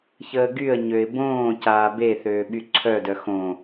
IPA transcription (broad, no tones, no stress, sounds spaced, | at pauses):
ç əː ɡ y ə̯ ɲ ø ɪ̯ b õː c aː b e θ øː ɓ y ǀʰ œ d œ x õ